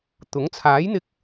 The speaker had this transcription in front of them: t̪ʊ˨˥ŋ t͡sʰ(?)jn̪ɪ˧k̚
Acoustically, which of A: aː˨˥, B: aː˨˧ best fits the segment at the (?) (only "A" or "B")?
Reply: A